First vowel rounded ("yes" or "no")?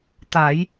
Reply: no